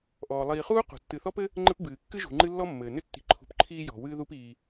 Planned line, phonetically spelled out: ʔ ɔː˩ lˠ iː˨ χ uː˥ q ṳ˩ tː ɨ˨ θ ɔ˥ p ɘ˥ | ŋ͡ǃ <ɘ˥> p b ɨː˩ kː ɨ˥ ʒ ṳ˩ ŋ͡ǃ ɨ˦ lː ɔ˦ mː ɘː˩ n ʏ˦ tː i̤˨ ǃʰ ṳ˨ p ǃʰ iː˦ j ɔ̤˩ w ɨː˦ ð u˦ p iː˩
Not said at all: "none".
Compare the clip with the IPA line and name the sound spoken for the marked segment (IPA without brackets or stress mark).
ɘ˥